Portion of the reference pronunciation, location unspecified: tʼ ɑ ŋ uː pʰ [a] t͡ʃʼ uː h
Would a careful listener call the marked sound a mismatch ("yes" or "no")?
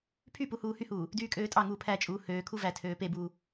yes